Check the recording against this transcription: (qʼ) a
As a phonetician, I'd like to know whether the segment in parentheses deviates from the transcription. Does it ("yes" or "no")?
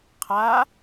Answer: yes